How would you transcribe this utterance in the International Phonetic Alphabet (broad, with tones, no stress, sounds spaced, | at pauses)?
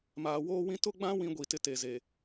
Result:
m aː˨ w oː˦ w ĩ˦ t ʊ˦ ɡ͡b ã˦ w ĩ˦ ɡʷ i˨ t ɪ˦ t e˨ z e˨